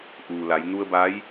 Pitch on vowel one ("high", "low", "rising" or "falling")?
low